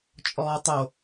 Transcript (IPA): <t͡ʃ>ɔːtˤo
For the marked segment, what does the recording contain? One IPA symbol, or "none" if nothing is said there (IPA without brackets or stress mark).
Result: t͡ʃʼ